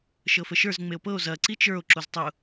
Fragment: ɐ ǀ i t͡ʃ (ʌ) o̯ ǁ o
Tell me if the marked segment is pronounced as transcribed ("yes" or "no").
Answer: no